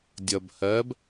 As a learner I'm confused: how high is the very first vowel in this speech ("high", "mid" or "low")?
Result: mid